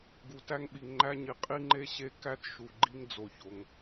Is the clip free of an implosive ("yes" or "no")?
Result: no